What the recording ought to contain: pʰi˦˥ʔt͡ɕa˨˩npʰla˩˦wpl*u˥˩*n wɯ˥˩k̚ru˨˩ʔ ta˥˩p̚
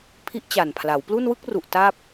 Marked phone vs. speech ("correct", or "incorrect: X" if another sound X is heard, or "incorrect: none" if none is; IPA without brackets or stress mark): correct